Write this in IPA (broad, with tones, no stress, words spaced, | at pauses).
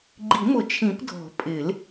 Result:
ɡ͡ǃi˨˩˦mʊ˨˩˦ t͡ʃʰĩ˨˩˦pdʱɔ̤˨˩˦ pʼɪ˨˩˦l